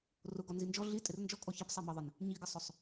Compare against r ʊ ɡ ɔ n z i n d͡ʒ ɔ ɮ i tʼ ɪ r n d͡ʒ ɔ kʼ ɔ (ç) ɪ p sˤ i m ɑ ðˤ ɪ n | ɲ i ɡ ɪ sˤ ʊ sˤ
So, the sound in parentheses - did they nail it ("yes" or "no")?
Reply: yes